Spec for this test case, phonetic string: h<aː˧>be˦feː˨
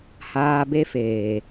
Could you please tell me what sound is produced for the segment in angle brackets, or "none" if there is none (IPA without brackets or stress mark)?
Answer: aː˧